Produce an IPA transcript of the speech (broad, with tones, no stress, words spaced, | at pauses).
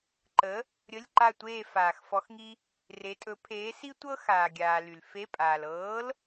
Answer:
ǃə˨˥ | ɾʲə˧˥˧lʲǃa˦˨tʷeː˦˨ faː˩x fɔ˨˥xŋi˥ | re˨˥tʼɵ˨˥ pʰeː˨˥si˥ tʷɤ˥xaː˩ɡʲaː˩ ly˩l fe˧˥˧pʼaː˩l ɤː˨˥l